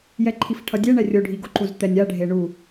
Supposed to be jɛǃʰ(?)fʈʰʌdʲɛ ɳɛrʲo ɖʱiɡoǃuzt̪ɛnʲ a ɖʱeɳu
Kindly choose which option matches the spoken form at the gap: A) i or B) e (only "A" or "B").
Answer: A